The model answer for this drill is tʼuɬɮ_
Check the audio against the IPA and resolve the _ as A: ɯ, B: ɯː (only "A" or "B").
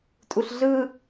A